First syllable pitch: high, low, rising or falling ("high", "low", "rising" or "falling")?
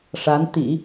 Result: rising